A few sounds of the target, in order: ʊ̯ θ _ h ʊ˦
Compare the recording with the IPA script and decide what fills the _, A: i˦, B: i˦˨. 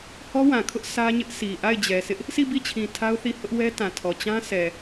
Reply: B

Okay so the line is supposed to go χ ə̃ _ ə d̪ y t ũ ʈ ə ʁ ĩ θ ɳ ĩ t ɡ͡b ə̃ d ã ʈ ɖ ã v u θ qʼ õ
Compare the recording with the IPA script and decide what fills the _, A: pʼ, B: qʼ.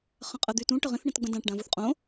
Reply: B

